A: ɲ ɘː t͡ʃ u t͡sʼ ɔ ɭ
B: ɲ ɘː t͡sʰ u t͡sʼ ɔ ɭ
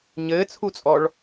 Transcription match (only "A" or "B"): B